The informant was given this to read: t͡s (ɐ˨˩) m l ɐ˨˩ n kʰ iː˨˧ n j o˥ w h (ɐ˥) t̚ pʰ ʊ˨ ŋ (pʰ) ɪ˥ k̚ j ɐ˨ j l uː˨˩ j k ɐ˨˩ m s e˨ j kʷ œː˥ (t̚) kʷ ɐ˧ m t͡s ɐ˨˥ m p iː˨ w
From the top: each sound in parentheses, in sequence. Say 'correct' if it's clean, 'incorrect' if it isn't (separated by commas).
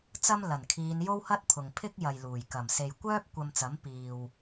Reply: incorrect, correct, correct, incorrect